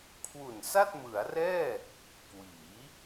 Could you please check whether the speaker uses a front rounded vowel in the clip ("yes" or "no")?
no